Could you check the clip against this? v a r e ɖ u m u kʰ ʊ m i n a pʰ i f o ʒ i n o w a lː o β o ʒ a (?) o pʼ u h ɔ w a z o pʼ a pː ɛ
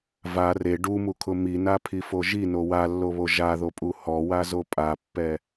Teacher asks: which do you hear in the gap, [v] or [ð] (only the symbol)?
ð